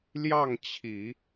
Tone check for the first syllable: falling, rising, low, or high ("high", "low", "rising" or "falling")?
falling